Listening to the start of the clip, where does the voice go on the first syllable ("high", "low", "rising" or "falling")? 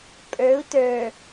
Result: rising